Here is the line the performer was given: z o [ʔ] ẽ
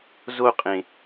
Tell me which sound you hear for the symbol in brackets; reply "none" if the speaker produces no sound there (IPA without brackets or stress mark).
qʼ